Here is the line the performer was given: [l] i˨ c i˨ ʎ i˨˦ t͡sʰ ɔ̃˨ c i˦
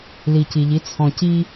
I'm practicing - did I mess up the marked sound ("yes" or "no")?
no